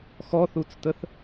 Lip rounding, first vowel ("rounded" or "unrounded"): rounded